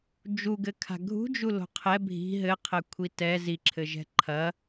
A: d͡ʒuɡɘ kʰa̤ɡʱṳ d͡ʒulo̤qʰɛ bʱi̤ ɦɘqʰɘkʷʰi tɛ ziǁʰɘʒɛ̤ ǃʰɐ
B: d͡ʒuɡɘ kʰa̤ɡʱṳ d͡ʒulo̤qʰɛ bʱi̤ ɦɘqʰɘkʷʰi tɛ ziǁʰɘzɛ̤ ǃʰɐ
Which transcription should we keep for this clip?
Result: A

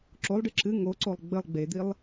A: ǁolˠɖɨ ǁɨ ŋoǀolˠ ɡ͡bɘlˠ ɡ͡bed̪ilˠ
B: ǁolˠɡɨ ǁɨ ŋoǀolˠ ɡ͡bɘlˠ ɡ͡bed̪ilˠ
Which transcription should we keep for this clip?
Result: A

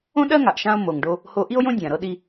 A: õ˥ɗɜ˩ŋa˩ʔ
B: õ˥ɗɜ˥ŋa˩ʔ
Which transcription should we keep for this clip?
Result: B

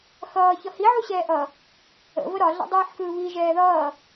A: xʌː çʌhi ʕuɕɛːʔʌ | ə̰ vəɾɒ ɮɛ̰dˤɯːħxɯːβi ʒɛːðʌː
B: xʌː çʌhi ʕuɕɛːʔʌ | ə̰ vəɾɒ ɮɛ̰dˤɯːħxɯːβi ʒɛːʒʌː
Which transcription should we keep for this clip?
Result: A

